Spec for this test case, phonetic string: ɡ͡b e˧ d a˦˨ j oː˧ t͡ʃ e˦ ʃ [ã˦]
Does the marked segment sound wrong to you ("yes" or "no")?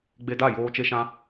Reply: no